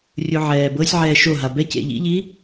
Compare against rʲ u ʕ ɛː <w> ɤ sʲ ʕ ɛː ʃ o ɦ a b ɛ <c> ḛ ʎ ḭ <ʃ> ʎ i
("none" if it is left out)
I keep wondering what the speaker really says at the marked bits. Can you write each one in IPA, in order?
b, c, none

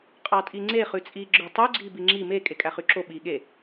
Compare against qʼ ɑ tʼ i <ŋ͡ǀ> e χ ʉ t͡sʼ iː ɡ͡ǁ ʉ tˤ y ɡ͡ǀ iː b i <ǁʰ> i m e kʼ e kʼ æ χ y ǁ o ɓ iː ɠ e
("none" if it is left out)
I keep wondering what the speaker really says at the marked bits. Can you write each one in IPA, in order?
ŋ͡ǀ, ŋ͡ǁ

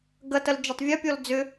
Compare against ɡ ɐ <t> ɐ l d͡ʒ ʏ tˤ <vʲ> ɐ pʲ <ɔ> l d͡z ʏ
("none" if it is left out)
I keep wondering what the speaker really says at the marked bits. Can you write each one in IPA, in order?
t, vʲ, ɔ

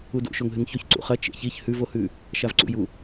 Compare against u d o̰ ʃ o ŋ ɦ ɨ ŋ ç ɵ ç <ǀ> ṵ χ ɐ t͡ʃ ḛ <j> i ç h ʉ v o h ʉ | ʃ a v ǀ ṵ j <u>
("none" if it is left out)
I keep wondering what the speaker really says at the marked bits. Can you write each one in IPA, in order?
ǀ, ç, u

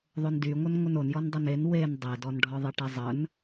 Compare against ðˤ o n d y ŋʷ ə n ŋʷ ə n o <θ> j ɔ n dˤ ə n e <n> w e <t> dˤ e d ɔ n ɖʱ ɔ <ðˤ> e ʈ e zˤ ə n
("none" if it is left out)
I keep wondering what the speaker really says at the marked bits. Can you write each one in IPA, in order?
n, n, n, ðˤ

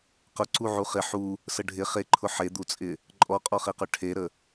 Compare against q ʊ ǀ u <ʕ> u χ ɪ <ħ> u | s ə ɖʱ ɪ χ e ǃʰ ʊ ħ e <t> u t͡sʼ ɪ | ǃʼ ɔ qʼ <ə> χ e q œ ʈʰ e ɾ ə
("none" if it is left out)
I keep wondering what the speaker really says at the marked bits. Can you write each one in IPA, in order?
ʕ, ħ, d̪, ɔ

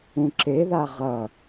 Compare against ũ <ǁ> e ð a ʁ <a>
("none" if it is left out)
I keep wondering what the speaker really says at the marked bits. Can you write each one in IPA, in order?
ǁ, ʌ

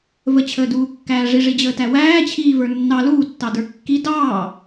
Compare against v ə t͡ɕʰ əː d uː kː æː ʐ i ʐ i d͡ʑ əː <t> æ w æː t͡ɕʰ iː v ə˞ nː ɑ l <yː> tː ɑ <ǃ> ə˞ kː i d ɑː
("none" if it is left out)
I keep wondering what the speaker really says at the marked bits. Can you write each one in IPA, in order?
t, uː, d

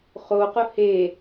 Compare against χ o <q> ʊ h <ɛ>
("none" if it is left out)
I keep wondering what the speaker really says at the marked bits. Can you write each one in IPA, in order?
q, e

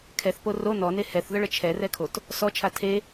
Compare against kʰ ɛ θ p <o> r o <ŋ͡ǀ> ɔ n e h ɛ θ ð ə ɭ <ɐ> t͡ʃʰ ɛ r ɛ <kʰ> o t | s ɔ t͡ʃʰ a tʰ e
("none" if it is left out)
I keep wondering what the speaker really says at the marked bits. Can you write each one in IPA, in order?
o, n, ə, kʰ

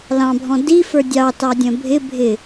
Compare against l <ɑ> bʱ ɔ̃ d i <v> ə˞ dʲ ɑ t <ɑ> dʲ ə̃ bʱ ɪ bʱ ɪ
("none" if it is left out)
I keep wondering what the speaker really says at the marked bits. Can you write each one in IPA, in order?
ɑ̃, f, ɑ

